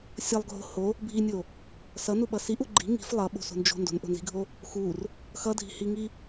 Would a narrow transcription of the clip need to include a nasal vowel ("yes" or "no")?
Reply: no